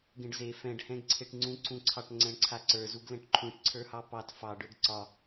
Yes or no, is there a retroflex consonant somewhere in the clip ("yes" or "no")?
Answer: yes